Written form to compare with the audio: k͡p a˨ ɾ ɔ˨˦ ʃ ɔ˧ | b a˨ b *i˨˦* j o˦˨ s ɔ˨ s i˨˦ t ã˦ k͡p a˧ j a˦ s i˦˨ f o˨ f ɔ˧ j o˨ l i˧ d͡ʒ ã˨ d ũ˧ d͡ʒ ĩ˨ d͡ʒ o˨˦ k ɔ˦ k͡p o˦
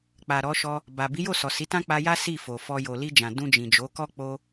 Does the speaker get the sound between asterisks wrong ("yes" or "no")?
no